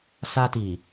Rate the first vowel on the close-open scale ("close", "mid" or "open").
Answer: open